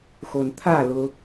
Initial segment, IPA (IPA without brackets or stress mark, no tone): x